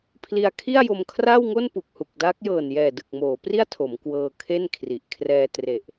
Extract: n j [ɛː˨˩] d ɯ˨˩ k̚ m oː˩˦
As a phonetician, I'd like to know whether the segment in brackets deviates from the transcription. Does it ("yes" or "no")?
no